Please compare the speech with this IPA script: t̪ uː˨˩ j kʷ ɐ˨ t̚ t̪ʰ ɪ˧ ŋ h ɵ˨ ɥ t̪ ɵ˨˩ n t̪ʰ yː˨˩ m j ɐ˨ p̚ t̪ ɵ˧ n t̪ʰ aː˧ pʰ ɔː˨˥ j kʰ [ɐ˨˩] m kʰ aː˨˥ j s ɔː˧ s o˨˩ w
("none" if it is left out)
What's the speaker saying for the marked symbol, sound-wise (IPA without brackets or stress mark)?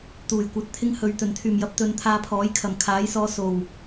ɐ˨˩